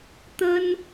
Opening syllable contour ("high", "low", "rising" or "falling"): high